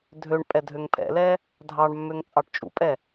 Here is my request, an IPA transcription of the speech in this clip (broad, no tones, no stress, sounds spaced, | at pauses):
dʱ ø ɳ pʼ ɛ dʱ ø ŋ pʰ ɛ̰ l ɛ | dʱ ɑ ɳ mː ø ŋ t͡sʼ ɑ ʈ t͡ʃʼ ṵ pʼ ɛ